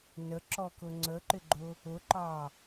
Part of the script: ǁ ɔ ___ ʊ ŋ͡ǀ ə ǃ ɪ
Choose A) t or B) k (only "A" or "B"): B